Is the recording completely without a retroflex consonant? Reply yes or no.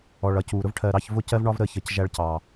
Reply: no